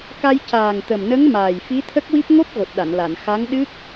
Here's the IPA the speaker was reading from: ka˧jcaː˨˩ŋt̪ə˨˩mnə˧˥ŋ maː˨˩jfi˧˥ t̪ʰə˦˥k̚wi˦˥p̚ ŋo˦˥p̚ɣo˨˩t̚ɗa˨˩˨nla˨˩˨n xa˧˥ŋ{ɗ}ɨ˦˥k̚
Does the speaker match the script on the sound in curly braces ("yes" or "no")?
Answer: yes